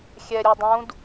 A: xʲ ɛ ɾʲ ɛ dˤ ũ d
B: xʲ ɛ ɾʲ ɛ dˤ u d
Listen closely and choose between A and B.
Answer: A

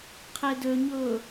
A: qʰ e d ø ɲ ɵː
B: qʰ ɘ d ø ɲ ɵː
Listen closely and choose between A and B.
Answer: A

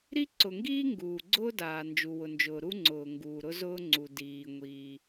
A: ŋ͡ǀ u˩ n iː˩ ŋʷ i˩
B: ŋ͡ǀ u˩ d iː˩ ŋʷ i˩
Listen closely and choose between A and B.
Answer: B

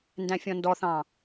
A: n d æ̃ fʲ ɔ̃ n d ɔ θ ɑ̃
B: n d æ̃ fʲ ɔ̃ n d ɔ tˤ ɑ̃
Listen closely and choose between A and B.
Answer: A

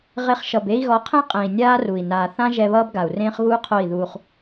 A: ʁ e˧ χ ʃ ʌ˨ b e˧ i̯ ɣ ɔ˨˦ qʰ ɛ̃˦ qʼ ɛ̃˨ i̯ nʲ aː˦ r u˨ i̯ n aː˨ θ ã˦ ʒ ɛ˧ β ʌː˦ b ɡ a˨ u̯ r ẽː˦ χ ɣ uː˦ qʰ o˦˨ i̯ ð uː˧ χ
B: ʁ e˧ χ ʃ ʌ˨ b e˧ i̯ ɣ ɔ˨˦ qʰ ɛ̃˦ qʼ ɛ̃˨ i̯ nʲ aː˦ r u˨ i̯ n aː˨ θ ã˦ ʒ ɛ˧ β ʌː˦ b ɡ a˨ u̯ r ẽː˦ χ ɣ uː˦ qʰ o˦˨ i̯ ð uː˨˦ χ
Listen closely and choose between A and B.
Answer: A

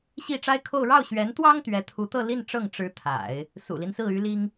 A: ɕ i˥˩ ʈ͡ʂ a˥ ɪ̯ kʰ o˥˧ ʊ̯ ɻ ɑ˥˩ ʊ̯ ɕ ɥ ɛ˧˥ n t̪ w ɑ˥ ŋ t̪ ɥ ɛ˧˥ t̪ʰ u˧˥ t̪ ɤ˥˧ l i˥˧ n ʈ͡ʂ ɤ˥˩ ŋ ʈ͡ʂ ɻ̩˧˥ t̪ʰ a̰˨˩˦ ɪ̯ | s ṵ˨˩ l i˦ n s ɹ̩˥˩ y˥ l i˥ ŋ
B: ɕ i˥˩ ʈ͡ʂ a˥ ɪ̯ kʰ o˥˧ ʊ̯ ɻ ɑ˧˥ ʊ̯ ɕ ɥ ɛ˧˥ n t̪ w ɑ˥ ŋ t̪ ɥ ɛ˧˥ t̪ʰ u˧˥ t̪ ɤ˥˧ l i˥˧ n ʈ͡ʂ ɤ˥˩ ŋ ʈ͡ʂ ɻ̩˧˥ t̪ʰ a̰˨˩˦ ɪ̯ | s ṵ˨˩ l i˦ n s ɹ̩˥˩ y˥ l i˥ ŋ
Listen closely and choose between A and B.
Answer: A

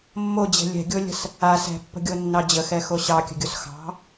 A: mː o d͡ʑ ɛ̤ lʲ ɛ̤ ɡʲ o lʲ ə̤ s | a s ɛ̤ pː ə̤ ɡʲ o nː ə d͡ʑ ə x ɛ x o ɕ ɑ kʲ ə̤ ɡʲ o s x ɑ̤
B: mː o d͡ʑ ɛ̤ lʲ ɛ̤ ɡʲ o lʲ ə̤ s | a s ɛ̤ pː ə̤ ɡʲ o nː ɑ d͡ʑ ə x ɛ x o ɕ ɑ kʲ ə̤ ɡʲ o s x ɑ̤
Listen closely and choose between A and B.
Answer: B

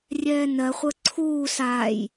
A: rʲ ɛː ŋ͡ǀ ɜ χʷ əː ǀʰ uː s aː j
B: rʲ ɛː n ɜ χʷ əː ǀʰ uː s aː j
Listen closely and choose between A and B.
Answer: B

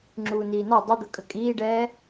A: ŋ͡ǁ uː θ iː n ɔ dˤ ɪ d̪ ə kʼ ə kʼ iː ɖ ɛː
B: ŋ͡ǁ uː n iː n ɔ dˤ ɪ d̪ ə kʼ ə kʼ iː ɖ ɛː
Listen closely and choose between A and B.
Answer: B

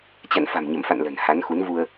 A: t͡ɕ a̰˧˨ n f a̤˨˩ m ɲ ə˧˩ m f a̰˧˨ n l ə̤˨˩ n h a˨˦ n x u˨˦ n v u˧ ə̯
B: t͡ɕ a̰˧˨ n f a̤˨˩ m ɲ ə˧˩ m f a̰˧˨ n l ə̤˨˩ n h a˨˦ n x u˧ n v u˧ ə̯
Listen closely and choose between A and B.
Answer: A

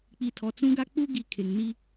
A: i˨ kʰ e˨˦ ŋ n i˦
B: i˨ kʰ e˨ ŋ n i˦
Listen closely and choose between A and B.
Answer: B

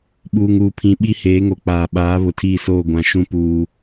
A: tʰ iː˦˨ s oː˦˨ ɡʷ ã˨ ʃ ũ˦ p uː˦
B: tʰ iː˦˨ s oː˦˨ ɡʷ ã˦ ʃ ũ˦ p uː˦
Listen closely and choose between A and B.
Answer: A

